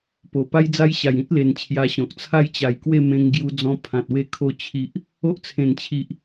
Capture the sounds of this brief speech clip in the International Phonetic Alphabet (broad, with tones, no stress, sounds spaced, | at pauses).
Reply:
p o˨˩ p a˦ j d͡z a˦ j ɕ a˨˩ j ĩ˦ t̚ l e˨˩ n t͡ɕʰ j a˧ ɕ ɔ̃˨ k̚ t͡sʰ a˥˧ j t͡ɕ a˨˩ j k w e˥˧ m ẽ˧ ŋ ɡ j u˧ d͡z ɔ̃˧ pʰ ã˨ t̚ w e˥˧ kʰ o˧ t͡ɕʰ i˨ ʔ | o˦ ʔ t͡sʰ ẽ˨˩ n t͡ɕʰ i˨ ʔ